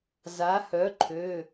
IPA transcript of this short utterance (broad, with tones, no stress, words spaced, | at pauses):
za˨˥hœ˨˥ǃʰø˩˧˩